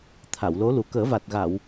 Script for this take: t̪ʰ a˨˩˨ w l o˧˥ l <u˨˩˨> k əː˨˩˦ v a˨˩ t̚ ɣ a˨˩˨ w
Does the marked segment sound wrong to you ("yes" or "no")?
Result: yes